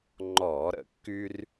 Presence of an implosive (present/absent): absent